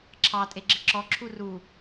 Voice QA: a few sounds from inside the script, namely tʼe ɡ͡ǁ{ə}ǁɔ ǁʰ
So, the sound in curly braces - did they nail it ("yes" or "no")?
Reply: yes